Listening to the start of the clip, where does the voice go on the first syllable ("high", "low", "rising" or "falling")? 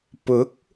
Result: rising